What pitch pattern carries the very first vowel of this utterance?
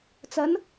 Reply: rising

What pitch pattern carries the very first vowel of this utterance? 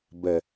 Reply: low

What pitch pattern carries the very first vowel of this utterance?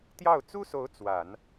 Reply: falling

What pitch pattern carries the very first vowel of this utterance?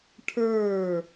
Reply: falling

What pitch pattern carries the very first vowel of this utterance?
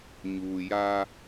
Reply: low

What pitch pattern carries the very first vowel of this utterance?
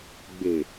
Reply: low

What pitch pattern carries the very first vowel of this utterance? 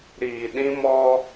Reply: low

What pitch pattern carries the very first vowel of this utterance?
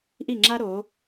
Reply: falling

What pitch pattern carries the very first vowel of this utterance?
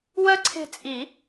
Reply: high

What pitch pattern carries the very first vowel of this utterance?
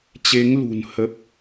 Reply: rising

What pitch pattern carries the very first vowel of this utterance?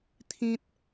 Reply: low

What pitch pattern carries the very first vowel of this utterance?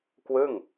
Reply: falling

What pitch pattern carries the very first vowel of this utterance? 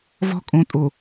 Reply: high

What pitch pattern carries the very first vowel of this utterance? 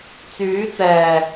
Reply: rising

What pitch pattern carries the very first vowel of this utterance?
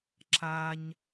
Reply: high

